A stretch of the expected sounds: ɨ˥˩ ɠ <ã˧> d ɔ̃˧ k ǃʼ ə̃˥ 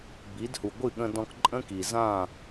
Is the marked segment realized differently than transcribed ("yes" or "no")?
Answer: yes